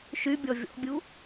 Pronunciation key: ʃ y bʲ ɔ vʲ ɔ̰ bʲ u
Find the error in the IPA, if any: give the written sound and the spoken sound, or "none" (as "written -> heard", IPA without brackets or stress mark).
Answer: none